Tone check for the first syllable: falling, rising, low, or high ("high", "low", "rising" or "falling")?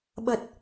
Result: low